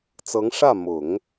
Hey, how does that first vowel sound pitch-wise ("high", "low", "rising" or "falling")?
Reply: rising